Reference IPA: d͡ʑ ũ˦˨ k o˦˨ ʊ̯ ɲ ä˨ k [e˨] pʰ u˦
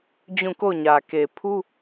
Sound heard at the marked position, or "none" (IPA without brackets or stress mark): e˨